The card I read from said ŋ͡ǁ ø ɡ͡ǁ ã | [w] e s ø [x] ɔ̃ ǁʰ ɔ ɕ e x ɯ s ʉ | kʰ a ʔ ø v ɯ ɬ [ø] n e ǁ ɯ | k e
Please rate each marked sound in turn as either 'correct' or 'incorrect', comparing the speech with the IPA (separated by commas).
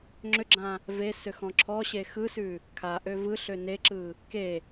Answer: incorrect, correct, correct